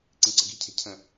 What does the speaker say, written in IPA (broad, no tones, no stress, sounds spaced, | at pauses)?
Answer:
ǀ ĩ ǀ ə̤ ɡ i̤ cʰ e̤ cʰ ə̃